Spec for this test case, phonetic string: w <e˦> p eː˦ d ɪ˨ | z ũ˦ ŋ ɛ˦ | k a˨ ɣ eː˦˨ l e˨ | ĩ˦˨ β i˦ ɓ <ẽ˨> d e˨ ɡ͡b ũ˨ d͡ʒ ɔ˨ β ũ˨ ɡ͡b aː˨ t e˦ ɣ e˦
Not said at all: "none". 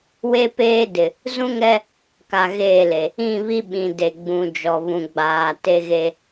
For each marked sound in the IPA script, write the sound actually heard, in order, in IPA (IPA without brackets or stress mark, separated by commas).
e˦, ĩ˨